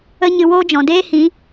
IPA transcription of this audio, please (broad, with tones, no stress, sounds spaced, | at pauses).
ə˦ ɲ ɨ˧ w oː˦ d͡ʒ ɔ̃˨ d eː˦ h ĩ˨˦